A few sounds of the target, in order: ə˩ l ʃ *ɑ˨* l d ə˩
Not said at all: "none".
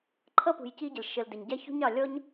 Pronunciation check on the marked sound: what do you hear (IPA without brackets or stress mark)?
ə˨